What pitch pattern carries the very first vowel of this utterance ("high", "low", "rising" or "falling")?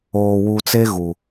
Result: low